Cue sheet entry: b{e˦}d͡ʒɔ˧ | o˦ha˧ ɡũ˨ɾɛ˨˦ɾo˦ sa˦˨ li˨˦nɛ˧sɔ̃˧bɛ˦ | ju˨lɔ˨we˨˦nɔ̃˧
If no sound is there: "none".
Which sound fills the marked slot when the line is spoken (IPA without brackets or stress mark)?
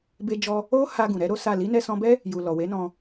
e˧